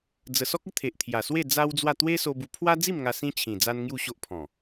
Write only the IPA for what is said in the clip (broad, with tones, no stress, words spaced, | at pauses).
d͡zə˨˩sɔ˦k̚ə˦ t̪ʰe˨ʔt̪ʰja˨˩swe˥˧ d͡za˦wd͡zwa˥˧ t̪we˦so˧bu˧ pʰwa˦d͡zi˥˧mŋa˧ sĩ˦t͡ɕʰĩ˨˩ d͡za˦nŋju˥˧ɕo˦ʔ pʰɔ̃˨˩